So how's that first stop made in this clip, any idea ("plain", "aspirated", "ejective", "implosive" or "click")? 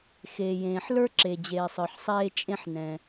click